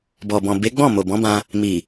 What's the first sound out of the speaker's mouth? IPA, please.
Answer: b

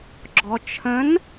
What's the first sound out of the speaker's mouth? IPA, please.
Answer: ɡ͡ǁ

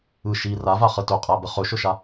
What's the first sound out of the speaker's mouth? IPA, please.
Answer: ɯ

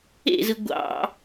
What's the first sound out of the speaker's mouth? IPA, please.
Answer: ḛ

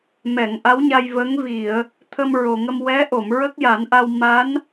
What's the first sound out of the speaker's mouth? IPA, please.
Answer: m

